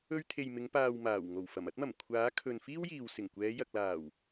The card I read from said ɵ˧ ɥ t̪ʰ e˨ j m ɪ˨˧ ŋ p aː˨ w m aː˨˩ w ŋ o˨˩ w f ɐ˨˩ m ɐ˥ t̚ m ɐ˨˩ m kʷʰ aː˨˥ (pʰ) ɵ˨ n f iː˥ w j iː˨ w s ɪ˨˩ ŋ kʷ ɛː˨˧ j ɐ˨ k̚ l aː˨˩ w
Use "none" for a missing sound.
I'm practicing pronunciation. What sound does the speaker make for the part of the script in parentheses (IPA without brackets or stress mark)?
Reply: kʰ